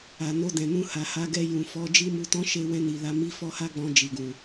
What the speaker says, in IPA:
a˨ no˧dɛ̃˨nũ˧ha˨ ha˨˦ɡɛ˧ jũ˨ fɔ˨˦ d͡ʒi˦mu˧tɔ̃˦ ʃe˧wɛ̃˧ni˨la˨˦ mi˦fɔ˦ha˦ɡ͡bɔ̃˧ d͡ʒi˨ɡũ˨

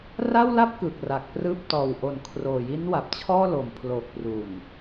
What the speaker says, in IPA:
ra˥˩wla˥˩p̚ kɯː˨˩k̚ra˨˩k̚prɯː˥˩p̚ tɔː˨˩wʔo˨˩n kʰroː˨˩ ji˦˥nwa˨˩p̚ t͡ɕʰɔː˥˩lo˨˩m pʰloː˨˩k̚pru˨˩n

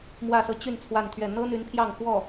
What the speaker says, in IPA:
mwä˥˧sɤ˥˧ t͡ɕy˥˧n t͡sʰwa˥˧nt̪ʰɥɛ˥˩ n̪ɤ˥n̪y˧˥n pʰjɑ˥˧ŋfwɔ˥˩

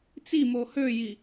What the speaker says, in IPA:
t͡simo høji

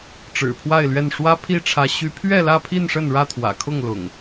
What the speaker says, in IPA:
ʈ͡ʂɻ̩˨˩pʰwa˥˨ɪ̯lɥɛ˥˨n ʂwä˦ pʰi˥˨ʈ͡ʂʰä˨˦ ɕy˨˦pʰɥɛ˥˨lä˥˨pʰi˥˨n ʂə˥˨nɻä˥˨t̪ʰwä̰˨˩kʰʊ˥˨ŋ lʊ̰˨˩ŋ

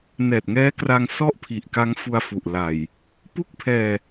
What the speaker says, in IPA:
nɛː˨˩t̚ŋɛː˦˥kra˧ŋ sɔ˥˩ʔ pʰi˨˩ʔka˦˥ŋfu˧a̯ fu˨˩ʔla˨˩j | pu˥˩k̚pʰɛː˧

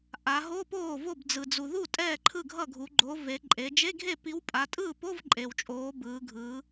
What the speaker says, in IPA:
ʔa˩˧ɦo˧˥˧poː˥˩vo˥˩b d͡zɯ˩d͡zu˩ðu˥˩ tʼɛː˥˩ǃʰɯ˥˩ɡʱʌ˥˩ɡʱu˩˧ ɡ͡ǃo˩˧ ve˩˧ ǃʼe˩˧ d͡ʒe˧˥˧ɡʱe˥˩pi˨˥w pʼa˩˧tʼɯː˥˩po˧˥˧v ǃʼe˩wt͡ʃʼoː˩˧ bɯː˩˧ ɡʱɯː˩˧

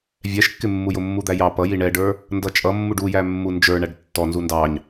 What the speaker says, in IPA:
vʲɛʃkːɪmːujʊ mːud̪æjɑ pʌji ɳɛɖə˞ | ndʌt͡ʃʼʌmːuɖ ujæ mːund͡ʒə˞ ɳæɖtːɔnzu ndɑɲ

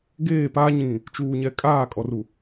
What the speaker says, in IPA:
ɡeː˦˨paː˦ɲĩ˨ | t͡ʃuː˨ɲɛ˨ kʼaː˦˨ kʼɔ˨ru˨

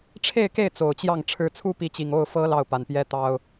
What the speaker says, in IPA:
ʈ͡ʂʰe˥˧ɪ̯ke˥˩ɪ̯ t͡so˨˩ʊ̯t͡ɕjɑ˥˩ŋ ʈ͡ʂʰɻ̩˧˥t͡sʰu˥pi˧˥t͡ɕi˨˩ŋ o˥˩ʊ̯fɤ˥ lɑ˥˩ʊ̯pa˨˩n pjɛ˥t̪ɑ˥ʊ̯

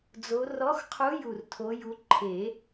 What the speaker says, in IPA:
d͡zo˨˦ rɔ˨˦xqʰu˨˦ju˨˩r tʰo˨˦ju˨˦ ǃʰe˨˩˦

